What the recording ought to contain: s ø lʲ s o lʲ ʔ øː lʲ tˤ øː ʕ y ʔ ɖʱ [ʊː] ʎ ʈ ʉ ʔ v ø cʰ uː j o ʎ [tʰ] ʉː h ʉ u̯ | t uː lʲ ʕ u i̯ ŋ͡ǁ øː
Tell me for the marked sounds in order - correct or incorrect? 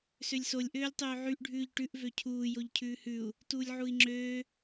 incorrect: ʉː, incorrect: cʰ

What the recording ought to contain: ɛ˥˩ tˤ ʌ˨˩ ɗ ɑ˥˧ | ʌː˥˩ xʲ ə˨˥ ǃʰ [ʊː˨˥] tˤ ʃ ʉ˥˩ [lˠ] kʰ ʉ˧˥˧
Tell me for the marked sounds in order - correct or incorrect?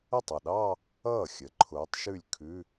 correct, incorrect: lʲ

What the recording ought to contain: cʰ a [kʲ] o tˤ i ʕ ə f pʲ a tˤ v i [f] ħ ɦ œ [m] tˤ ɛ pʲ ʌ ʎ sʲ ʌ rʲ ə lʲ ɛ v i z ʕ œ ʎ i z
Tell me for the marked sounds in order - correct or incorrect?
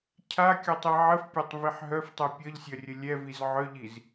correct, incorrect: none, incorrect: f

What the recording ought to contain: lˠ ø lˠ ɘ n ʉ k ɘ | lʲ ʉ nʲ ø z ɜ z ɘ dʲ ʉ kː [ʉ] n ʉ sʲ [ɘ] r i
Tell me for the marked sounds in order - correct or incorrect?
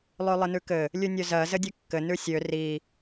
incorrect: ɘ, incorrect: ø

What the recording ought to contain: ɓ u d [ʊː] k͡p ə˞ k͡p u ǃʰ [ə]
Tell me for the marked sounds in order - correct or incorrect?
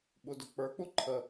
incorrect: ʊ, correct

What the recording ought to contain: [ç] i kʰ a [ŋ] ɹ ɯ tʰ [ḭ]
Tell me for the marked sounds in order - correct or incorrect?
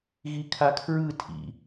incorrect: ɣ, incorrect: kʰ, correct

